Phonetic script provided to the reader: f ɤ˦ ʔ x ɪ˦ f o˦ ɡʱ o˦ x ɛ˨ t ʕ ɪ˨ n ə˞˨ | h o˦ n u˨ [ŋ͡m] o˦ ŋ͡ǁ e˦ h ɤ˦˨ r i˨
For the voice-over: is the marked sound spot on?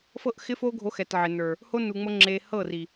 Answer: yes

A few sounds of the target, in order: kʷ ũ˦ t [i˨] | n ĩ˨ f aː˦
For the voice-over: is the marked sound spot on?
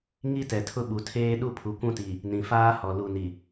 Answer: yes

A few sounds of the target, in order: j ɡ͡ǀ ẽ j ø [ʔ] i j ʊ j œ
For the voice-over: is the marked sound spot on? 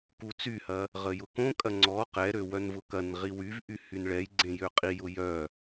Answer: no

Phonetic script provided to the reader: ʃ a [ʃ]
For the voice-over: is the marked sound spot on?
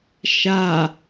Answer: no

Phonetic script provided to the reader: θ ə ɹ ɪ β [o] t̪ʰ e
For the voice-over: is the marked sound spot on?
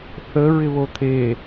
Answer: yes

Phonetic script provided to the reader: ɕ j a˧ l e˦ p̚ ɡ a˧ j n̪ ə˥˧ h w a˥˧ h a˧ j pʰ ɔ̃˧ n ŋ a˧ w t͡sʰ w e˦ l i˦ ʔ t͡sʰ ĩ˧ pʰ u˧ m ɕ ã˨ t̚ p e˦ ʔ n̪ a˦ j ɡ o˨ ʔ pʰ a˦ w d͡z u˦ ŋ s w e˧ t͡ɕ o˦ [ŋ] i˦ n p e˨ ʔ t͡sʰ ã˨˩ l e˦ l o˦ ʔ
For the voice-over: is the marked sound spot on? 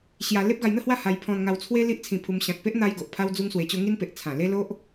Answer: yes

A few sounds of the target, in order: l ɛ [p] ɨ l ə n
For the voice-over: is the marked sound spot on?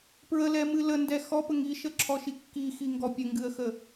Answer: no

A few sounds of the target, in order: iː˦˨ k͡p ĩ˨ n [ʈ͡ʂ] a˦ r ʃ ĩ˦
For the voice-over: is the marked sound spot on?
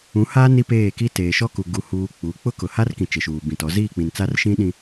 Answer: no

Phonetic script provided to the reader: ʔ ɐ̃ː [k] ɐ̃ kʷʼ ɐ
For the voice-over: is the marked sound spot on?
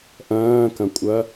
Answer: yes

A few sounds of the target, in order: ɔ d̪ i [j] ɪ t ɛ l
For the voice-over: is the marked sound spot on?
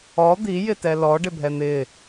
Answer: yes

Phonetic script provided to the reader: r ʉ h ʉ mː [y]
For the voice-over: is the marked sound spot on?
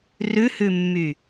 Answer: yes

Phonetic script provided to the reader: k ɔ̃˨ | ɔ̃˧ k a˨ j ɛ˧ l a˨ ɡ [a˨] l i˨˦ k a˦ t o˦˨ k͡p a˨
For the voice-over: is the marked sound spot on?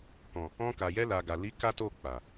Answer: yes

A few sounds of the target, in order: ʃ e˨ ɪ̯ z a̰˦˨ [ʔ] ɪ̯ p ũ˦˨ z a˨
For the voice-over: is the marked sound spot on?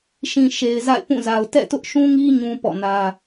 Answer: no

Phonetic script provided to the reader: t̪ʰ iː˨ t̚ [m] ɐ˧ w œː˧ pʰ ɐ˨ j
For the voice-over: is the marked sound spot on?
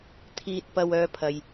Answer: no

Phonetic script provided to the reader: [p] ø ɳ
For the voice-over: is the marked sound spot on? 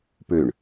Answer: yes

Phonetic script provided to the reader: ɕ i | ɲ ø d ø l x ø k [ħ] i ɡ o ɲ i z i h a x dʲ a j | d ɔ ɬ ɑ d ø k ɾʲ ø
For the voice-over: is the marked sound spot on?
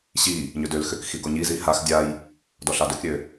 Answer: no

